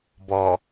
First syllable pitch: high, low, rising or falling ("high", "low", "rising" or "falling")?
low